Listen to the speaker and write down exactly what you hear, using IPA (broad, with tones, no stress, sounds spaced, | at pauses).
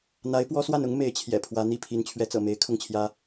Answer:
n̪ a˧˥ ɪ̯ p w ɔ˥ s w a˥˩ n ʊ˥ ŋ m e˧˥ ɪ̯ t͡ɕʰ j ɛ̰˨˩ pʰ w ä˧˥ n̪ i˥˩ pʰ i˧˥ n t͡ɕʰ ɥ ɛ˧˥ t͡s ɤ̰˨˩ m e˧˥ ɪ̯ kʰ ʊ˥˩ ŋ t͡ɕʰ j ä˥